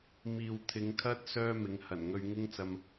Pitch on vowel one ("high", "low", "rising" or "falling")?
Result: low